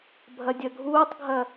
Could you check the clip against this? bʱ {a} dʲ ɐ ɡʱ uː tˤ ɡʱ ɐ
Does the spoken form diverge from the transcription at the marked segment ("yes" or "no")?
yes